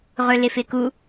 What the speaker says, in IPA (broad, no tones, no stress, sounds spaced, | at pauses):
ʁ ɵ l ɪ f ɪ k u